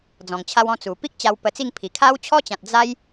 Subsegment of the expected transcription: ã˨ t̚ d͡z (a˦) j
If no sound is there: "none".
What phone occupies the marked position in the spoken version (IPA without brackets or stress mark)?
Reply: a˦